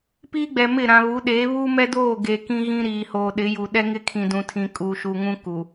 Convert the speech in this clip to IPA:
piː˦ɡ͡bɛ˨mɪ˦˨ ɾã˨βu˨˦ɗeː˨˦ βuː˦mɛ˦doː˦˨ ɡe˨kĩ˦ɣĩ˦ ɾiː˨hoː˨ ɗɪ˨˦ju˨ ɗɛ˦ŋɪ˦kʰĩ˨ dũ˨tʰĩ˨ kʼuː˨ʃu˨ŋũ˦ ku˨

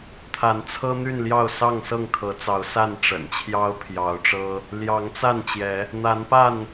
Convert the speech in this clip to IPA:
t̪ʰa˨˦nt͡sʰɤ˦n̪y˥˨nljɑ˥˨ʊ̯ sɑ˥˨ŋ sɤ˥˨ŋkʰɤ˨˦t͡sɑ˨˦ʊ̯sa˥˨n ʈ͡ʂə̰˨˩nt͡ɕʰjɑ˦ʊ̯pʰjɑ˨˦ʊ̯ʈ͡ʂɤ˦ | ljɑ˨˦ŋt͡sa˥˨nt͡ɕjɛ˨˦ | n̪a˨˦npa˥˨n

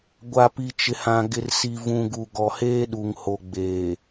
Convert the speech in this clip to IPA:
ɡʷa˨pi˨ t͡ʃɪ˨hã˨ ɡɪ˨rsi˨ vũ˨ɡu˨ ɡɔ˨heː˦ɗu˨ŋho˨ ɡ͡beː˨

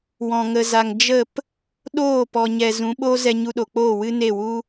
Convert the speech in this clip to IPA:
wɔ̃˨ŋə˨za˨ŋ d͡ʒə˦˨p | ɗoː˦˨pɔ˨ɲɛ˨ zũ˨˦ɓo˦ zɛ˧ɲu˧ɗo˨k͡poː˦˨ wɨ˦ne˦˨wu˦

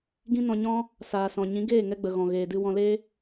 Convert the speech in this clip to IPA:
ɡĩ˦nɔ̃˧ɲɔ̃˦ | saː˨sɔ̃˨ ɲĩ˨˦ɡeː˦˨ŋɛ˧ɡ͡bə˨ ɣɔ̃˨ɣeː˨ dɨ˧wɔ̃˧leː˦

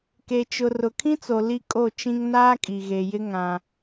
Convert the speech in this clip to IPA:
ke˨t͡ʃʊ˨ rʊ˨kʰĩ˦t͡so˨ li˦kʼo˦˨t͡ʃĩ˦ŋ naː˦kʼi˨ɣe˨jɪ˦ ŋã˦

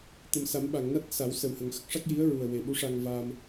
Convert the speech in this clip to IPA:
t̪ə˨˩msa˨˩˦mɓa˨˩˨ŋna˦˥t̚ sa˨˩˦wsə˨˩whə˨˩ŋ xə˦˥k̚ʂa˦˥k̚ ji˧˥ə̯ɹu˨˩ə̯ we˨˩ɓu˧˥ʂa˧ŋ va˧m

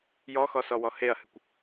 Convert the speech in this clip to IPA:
jɔxɔsɔwɔ heɐ̯hɨkʷ

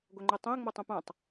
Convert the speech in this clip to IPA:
ɡʷɐŋ͡ǃutˤõə̯ ŋ͡mɔtˤõpãtˤ

